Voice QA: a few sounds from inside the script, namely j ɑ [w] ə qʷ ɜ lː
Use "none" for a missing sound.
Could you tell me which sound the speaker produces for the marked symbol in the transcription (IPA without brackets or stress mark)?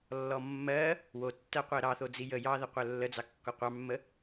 ð